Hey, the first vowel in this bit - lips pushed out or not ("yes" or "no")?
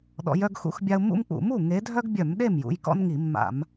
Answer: yes